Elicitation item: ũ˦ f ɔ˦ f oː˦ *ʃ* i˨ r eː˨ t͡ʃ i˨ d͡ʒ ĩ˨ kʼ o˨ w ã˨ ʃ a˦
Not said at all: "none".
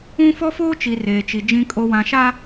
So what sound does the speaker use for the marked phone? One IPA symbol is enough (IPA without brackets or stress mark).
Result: t͡ʃ